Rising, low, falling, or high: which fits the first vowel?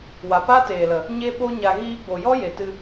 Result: low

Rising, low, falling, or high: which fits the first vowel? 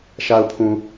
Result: low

